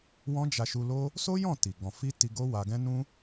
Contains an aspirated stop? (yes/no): no